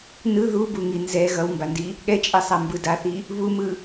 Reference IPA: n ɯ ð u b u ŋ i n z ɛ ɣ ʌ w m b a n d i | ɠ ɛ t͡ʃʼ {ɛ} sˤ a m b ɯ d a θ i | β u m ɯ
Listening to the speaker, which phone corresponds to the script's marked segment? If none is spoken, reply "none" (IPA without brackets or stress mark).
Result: ɛ